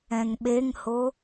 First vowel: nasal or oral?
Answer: nasal